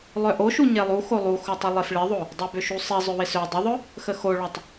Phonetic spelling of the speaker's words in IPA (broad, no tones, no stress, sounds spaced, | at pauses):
lˠ œ ʔ o ʃ u ɲ e lˠ u x o lˠ u x o tˤ u lˠ e f ɭ ɪ ðˤ o | dˤ ø b ʏ ʃ u sˤ i zˤ ʏ w ɪ s ø dˤ ɪ ðˤ ʊ | x ə x o ɭ ɔ tˤ